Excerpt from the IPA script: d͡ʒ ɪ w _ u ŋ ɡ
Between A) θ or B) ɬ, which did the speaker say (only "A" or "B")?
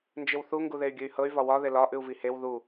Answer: A